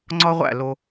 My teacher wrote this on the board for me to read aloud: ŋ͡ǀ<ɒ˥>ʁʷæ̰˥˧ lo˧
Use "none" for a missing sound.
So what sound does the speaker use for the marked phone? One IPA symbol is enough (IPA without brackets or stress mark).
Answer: ɒ˥